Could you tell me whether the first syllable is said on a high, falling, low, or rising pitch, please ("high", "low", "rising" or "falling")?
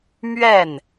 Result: falling